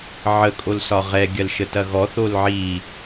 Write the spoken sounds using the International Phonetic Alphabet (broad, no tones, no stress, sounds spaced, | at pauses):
ʕ ə kʼ o l s ɒ ʁ ɛ ɡʲ ɐ l ʃ ə t ɐ ɣ ɔ θ o l ʕ i